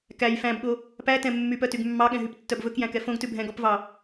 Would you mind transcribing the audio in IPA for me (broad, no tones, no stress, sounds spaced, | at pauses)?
k æ j f æ̃ b ɠ o | p æ t ɛ̃ mː y p œ t y ɡ mː ɑ ɠ ɛ̃ ɦ y p tː œ b v ɵ k j æ̃ k ɛ f õ ɡ t ʉ bʱ ɛ̃ ɡ ɔ p v ɑ